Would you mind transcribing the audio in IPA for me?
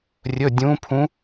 rʲ ɵ˩˧˩ dʲ ũ˨˦ pʰ ũ˨˦

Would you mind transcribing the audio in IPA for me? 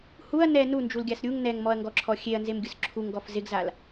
h u ɐ̯ n ɛ n u n d͡ʒ u l ɡʲ a s ɾʲ u ŋ n ɛ ŋ m ɔ ɐ̯ ŋ ɡ ɔ ǁʰ ɔ xʲ e ɐ̯ n z e m ɡʲ ʊ s ǁʰ u ŋ ɡ ɔ f z ɪ ɡ z a l

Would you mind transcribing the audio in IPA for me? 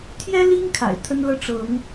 t̪ʰ j ɛ˦ l i˦ ŋ kʰ a̰˨˩ ɪ̯ t̪ʰ ə˦ n l ɤ˦ ʈ͡ʂ ɤ˨˦ ŋ

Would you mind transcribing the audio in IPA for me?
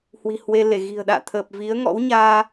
h w i̤˨˩ h w e˧ l e˧˩ ɣ i̤˨˩ ə̯ ɗ a̰ː˧˨ t̪ʰ əː˨˩ p̚ v i˨˦ ə̯ ŋ ɔ̰˧˥ w ɲ aː˧

